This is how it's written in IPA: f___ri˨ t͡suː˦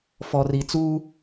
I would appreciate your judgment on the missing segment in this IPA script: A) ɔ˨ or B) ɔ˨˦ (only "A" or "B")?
A